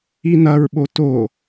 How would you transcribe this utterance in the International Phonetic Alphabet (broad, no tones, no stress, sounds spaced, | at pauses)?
i n ɐ ɹ ɓ o t o